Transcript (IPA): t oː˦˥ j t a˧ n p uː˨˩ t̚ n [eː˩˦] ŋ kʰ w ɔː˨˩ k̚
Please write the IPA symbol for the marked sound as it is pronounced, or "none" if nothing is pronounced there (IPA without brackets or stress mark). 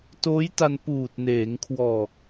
eː˩˦